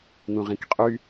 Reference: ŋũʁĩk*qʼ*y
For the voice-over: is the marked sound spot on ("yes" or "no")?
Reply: yes